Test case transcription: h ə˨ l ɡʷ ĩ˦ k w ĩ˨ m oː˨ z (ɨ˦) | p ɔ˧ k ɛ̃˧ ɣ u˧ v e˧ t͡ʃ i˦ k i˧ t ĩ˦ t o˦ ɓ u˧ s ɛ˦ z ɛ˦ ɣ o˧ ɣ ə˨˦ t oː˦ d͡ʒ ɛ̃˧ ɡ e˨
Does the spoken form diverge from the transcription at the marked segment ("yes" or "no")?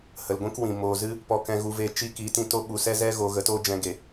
no